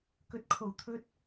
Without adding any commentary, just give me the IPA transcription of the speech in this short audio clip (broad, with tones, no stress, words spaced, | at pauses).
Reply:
kɵ˨t̚kʰo˨˩wt̪ʰɵ˧t̚